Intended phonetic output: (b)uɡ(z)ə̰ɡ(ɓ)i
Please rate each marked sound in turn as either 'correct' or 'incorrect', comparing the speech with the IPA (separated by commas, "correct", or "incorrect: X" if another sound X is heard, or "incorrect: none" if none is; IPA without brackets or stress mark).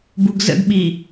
correct, correct, correct